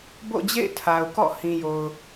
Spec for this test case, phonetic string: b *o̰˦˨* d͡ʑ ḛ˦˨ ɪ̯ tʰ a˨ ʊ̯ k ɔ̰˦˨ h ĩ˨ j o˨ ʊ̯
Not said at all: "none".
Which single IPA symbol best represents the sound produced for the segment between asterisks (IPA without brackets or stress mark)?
o̰˦˨